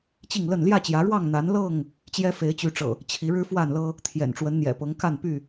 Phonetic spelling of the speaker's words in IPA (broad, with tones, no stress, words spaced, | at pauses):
t͡ɕi˥˨ŋlə˥˨n ljä˥˨t͡ɕjä˨˦ɻwɑ˥˨ŋ n̪a˨˦nlɤ˥˨ŋ | t͡ɕjɛ˦fe˨˦ɪ̯t͡ɕy˨˦ʈ͡ʂɤ̰˨˩ | t͡ɕʰi˨˦ɻɻ̩˦fwa˥˨nlɤ˦ | t̪ʰjɛ̰˨˩nʈ͡ʂwə˨˦nn̪jɛ̰˨˩pɤ˨˦ŋ ka˥˨npy˥˨